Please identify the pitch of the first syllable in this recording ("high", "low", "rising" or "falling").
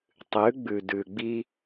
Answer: rising